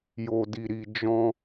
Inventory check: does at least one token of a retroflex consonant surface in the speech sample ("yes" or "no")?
no